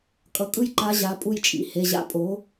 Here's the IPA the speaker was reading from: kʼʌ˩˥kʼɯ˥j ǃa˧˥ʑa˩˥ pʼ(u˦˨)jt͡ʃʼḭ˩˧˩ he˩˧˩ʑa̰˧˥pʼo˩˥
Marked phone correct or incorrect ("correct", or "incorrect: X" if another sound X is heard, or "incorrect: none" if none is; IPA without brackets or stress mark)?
correct